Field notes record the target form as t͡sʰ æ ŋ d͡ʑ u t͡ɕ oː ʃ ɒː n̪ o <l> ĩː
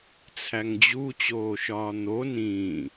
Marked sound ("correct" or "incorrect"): incorrect